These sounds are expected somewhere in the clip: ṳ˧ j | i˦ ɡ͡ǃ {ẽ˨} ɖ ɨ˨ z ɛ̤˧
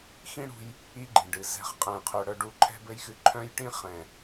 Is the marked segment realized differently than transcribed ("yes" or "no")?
yes